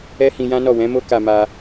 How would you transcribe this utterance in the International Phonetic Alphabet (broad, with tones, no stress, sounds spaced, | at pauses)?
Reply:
ɛ˦ h ĩ˧ j ã˦ n ɔ˦˨ w ɛ̃˨˦ m o˦ k a˧ m a˧